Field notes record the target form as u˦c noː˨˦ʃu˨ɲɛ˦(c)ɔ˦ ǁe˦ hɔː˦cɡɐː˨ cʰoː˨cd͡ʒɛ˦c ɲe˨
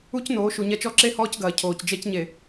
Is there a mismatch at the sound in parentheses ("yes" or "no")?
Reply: yes